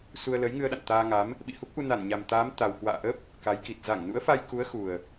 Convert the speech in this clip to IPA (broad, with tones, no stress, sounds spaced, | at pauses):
s u˧ ə̯ l ə˨˦ j ŋ ɨ˧ ə̯ ɗ a̰˧˨ n t̪ aː˧ ŋ a˨˦ m | ɓ ḭ˧˨ h u˦˥ k̚ ʔ u˧ n a˧˩ n ɲ a˨˩ m t̪ aː˨˦ m t̪ a˨˩ w k w a̰ː˧˨ ʔ ə˦˥ p̚ | k a˨˦ j k i˨˩ t̚ z a˧˩ ŋ n ṵ˧˥ ə̯ f a˧ j k u˨˦ ə̯ x u˨˩ ə̯